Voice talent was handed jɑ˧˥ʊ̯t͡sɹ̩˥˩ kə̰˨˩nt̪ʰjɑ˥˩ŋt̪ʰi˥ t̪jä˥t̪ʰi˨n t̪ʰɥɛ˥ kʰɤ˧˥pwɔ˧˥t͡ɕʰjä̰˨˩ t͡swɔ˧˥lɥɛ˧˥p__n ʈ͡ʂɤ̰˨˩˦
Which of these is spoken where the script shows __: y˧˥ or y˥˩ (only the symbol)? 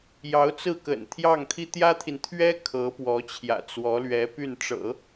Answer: y˥˩